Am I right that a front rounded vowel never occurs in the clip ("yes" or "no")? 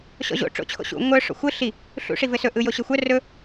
no